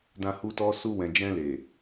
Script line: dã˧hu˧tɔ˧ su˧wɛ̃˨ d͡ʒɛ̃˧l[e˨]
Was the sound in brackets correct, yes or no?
yes